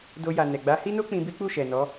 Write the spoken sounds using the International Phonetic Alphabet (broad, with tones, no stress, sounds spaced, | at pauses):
d o˧ j a˨ n ɛ˨ ɡ͡b a˨˦ h i˦ n o˦ k͡p ĩ˧ b i˦ k͡p u˦˨ ʃ ɛ˨ n ɔ˨˦